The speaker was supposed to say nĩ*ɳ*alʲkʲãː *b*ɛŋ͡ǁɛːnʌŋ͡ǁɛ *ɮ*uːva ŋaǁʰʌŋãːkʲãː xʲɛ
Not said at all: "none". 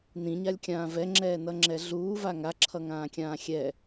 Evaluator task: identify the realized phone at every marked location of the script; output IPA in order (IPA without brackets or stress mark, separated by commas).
ɲ, v, ɮ